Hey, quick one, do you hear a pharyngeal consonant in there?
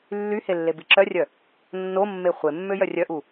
no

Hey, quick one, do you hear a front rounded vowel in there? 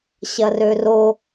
yes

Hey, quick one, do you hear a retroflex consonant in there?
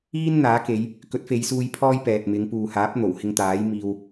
no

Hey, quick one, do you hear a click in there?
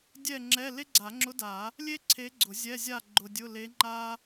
yes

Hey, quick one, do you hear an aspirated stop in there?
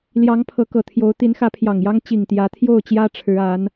yes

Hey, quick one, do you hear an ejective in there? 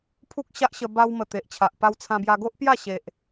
no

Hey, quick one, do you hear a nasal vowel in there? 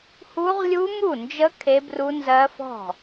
no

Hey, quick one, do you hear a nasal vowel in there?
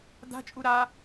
no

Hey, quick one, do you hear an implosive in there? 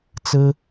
no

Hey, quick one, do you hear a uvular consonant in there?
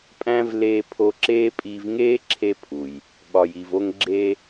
no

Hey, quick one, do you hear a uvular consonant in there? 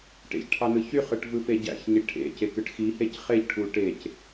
yes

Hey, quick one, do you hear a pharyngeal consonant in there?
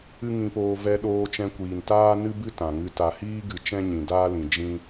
no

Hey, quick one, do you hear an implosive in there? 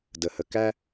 no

